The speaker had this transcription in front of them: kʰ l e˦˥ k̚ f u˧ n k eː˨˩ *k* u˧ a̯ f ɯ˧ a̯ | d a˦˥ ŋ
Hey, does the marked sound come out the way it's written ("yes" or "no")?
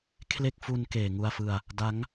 no